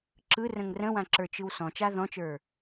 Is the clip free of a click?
no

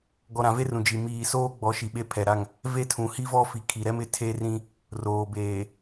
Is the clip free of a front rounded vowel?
yes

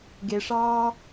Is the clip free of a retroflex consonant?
no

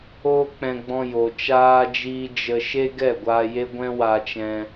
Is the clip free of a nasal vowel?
no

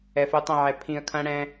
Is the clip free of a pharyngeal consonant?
no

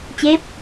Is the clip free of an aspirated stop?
yes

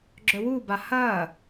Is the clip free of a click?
no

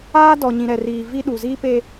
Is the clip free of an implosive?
no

